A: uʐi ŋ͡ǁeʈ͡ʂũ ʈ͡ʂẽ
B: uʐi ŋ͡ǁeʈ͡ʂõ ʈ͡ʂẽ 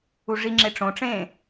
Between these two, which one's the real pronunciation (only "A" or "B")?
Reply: B